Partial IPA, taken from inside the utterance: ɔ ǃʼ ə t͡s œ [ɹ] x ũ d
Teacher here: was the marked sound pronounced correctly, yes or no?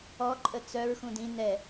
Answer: yes